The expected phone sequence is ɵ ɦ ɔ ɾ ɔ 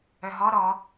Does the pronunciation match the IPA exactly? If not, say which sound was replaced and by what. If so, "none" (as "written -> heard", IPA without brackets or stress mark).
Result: ɵ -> œ